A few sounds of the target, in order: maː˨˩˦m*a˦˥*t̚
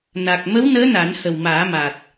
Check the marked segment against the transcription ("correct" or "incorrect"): incorrect